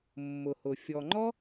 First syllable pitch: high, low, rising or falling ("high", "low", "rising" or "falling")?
low